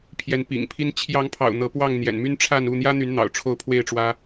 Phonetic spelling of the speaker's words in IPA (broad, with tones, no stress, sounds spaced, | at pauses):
pʰ j ɛ˨˦ n p ḭ˨˩ ŋ pʰ i˦ n t͡ɕʰ j ɑ˨˦ ŋ pʰ ɑ̰˨˩ ʊ̯ n̪ ɤ˨˦ p w ɑ˥˨ ŋ n̪ j ɛ̰˨˩ n m y˦ n ʈ͡ʂʰ a˥˨ n u˥˨ n̪ j ä˦ n̪ y˨˦ n n̪ ɑ̰˨˩ ʊ̯ ʈ͡ʂʰ o˥˨ ʊ̯ pʰ w e˥˨ ɪ̯ ʈ͡ʂ w ä˦